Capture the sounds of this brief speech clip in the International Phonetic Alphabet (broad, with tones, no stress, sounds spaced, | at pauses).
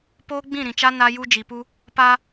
p oː˦ ɡ͡b ĩ˦˨ ɾ ĩ˨ t͡ʃ a˦ n a˦ j u˦ d͡ʒ i˨ p u˦ | p a˦